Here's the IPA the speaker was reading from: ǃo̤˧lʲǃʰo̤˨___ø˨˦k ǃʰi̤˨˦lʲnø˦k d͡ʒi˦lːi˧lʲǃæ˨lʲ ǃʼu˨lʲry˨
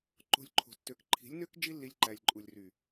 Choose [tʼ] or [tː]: tː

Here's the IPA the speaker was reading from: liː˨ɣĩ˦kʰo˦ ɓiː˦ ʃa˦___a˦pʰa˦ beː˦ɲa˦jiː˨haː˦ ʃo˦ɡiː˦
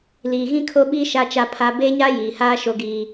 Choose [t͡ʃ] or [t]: t͡ʃ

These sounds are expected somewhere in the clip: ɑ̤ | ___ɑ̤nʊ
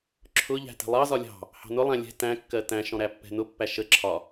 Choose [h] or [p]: h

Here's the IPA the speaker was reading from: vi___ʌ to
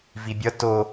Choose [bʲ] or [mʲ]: bʲ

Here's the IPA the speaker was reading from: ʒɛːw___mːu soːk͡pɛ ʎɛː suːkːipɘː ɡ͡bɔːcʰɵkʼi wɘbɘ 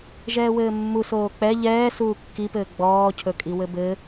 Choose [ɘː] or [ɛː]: ɘː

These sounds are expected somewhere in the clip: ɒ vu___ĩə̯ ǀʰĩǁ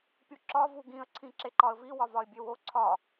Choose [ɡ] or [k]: ɡ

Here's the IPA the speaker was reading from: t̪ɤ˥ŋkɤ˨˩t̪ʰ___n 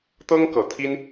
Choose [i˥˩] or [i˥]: i˥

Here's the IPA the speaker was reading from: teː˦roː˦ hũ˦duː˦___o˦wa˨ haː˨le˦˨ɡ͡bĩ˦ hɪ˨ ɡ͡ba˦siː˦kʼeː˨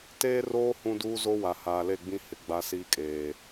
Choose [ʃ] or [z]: z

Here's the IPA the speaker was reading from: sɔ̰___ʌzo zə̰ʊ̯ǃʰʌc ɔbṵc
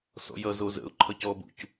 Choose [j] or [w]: j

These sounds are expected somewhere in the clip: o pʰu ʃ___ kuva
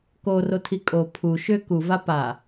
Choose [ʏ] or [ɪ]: ʏ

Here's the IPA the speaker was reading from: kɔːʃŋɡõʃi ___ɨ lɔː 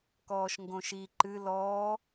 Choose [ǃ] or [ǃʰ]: ǃ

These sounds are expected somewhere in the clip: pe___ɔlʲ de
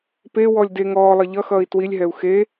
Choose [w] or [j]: w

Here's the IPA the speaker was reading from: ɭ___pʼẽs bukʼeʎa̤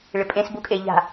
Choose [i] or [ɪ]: ɪ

